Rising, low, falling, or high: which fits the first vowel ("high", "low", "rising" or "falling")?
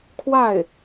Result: falling